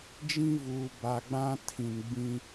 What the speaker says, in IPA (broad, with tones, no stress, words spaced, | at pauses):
d͡ʒĩ˦vuː˨ba˨ɡ͡bã˦ tʰĩ˨nɡ͡bĩ˦